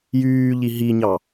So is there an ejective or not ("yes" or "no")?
no